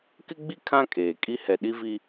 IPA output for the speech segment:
k ɪ˦ ɡ͡b i˦ kʰ ã˦ kʼ eː˨ kʼ i˦ h ɛ˨ ɗ i˦ v i˦

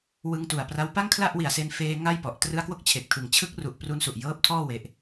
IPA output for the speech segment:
w ɯ˧ ŋ t u˨˩ a̯ p r a˦˥ w p a˥˩ ŋ kʰ l a˥˩ ʔ w i˨˩ a̯ s e˧ n f eː˧ ŋ a˥˩ j p ɔ˨˩ ʔ t r ɯ˦˥ a̯ k w o˥˩ k̚ t͡ɕʰ e˨˩ k̚ tʰ ɯ˨˩ ŋ t͡ɕʰ ɯ˦˥ k̚ r u˨˩ ʔ p r u˦˥ n s u˨˩ ʔ j ɤː˦˥ p̚ tʰ ɔː˥˩ w e˦˥ ʔ

